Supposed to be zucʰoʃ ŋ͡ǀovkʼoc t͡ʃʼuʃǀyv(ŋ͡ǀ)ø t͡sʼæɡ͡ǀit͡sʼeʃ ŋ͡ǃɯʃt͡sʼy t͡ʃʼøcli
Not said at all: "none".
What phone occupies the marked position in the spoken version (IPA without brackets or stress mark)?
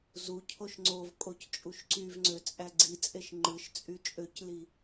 ŋ͡ǀ